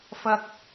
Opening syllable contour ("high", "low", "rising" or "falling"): high